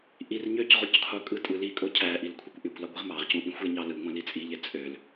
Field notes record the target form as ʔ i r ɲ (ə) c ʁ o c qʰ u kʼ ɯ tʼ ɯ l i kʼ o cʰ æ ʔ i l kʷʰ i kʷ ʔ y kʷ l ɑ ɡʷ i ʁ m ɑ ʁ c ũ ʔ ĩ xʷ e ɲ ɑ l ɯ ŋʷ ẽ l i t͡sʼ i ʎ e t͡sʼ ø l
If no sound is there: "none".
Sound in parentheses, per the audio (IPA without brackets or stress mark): ø